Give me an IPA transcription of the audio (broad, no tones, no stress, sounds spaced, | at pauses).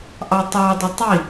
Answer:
ʔ ɑ tˤ ɑ dˤ ɪ tˤ i